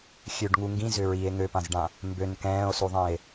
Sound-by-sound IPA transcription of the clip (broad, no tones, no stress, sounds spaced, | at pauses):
xʲ ø ɖ ŋ u ŋ ɡ ĩ z ʏ ɹ i e̯ ŋ ø p ã z ɖ ã | m b ø n k ɛ̃ː o̯ s u ðˤ ĩ e̯